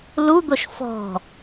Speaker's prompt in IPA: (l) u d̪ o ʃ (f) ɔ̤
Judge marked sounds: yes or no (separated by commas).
yes, yes